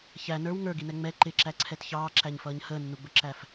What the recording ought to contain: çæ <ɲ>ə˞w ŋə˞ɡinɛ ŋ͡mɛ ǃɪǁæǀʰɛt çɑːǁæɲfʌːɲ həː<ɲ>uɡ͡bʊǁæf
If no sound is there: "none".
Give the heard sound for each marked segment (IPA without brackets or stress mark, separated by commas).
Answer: n, nː